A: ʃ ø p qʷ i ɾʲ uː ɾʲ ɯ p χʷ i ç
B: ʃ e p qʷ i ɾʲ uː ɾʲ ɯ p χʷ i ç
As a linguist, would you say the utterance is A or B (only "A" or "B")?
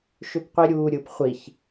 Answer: A